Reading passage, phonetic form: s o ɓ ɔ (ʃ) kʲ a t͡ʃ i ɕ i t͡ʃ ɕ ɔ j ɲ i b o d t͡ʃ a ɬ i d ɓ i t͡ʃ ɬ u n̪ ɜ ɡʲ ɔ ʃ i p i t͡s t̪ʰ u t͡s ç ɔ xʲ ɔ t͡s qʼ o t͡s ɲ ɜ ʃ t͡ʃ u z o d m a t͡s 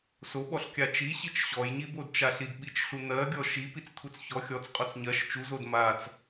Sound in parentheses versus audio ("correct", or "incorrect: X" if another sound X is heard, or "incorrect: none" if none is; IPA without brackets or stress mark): incorrect: ɬ